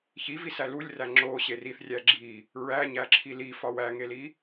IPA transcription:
çivisæ lulʲræ ŋ͡ǁoɕe riθrʲæ ɡ͡ǁi | ɹæɲæǁʰi lifɒ wæŋeli

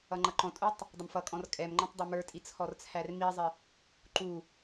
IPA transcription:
ʌŋ͡ǃʌǃɔ̃tʼutˤ | dˤəmfʌkʼɔ̃r kʼɛmŋ͡ǃɔ̃tˤ dˤʌmə˞tʼi t͡sʰɔrt͡sʰærmizˤɪ | ǃu

